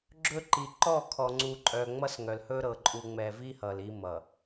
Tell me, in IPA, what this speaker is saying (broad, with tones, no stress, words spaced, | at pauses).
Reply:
ɡ͡ǁɵ˦ǃi˨ ǃɔ˦˨kʰɔ˨ŋ͡ǀu˨ ǃʼœ˨ ŋ͡mʌ˦sŋœ˨lhɵ˦ ɾɤ˨ǃʼu˨ŋ͡mɛ˨vi˦ hʌ˨li˦mʌ˨